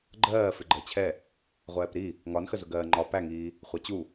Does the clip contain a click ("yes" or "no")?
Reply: yes